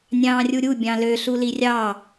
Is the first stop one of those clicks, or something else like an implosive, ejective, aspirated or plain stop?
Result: plain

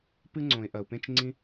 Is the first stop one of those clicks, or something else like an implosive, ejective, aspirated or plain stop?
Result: plain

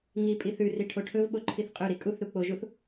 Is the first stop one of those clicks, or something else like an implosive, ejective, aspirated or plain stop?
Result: ejective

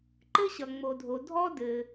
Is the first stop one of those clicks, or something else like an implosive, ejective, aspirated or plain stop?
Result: click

